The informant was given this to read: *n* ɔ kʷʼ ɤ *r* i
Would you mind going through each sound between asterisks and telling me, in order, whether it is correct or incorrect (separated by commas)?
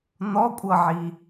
correct, incorrect